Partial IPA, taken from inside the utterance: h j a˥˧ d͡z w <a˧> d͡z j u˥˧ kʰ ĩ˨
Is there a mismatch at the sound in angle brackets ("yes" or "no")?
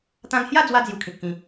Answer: no